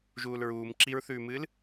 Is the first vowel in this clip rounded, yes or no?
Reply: yes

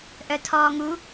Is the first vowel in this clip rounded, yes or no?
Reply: yes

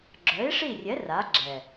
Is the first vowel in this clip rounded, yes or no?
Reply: yes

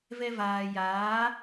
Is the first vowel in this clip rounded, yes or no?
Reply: no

